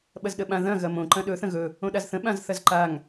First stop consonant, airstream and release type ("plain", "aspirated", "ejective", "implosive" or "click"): implosive